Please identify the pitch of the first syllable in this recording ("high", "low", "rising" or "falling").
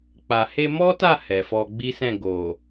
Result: low